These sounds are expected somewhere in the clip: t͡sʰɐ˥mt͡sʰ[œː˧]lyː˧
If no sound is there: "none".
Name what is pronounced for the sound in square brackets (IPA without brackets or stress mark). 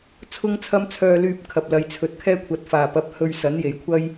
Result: œː˧